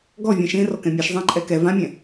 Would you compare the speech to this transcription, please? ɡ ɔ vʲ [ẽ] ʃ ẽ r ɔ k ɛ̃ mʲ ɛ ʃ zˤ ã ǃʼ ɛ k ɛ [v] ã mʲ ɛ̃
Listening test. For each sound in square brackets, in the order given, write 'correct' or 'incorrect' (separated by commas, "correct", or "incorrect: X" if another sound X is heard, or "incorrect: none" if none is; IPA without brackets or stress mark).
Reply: incorrect: ɛ̃, correct